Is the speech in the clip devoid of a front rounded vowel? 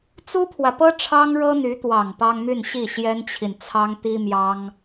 no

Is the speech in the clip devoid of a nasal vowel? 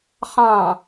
no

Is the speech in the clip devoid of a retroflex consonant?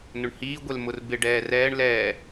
no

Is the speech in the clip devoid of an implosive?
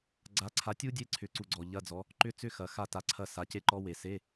yes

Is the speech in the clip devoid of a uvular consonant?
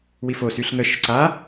yes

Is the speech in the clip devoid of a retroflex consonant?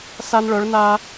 no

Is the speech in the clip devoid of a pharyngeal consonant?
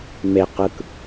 yes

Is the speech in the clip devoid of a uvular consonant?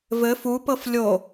yes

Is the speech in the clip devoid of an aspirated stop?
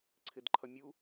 no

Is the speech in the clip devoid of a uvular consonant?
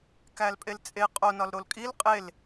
no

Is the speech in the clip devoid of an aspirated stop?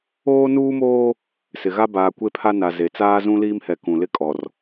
no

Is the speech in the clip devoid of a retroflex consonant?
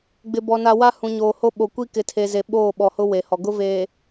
yes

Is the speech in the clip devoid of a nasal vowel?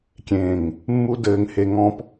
no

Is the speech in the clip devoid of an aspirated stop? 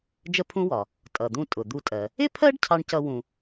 no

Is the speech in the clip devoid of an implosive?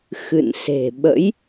no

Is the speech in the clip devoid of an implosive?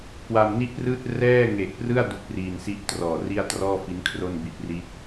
yes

